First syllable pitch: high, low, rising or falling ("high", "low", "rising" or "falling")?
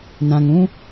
low